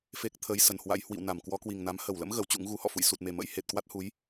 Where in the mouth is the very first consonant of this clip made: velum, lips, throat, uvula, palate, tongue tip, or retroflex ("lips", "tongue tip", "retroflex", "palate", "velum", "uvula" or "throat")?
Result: lips